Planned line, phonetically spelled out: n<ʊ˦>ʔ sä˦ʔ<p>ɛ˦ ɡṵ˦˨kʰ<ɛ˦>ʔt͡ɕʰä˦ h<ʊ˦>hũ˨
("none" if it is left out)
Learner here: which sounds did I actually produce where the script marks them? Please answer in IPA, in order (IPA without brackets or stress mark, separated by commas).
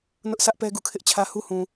ʊ˦, p, ɪ˦, u˦